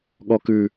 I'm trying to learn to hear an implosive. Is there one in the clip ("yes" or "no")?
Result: yes